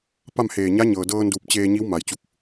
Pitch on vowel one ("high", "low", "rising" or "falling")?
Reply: falling